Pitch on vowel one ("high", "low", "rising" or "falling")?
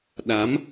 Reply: rising